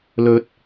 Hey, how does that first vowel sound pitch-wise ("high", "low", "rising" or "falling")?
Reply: rising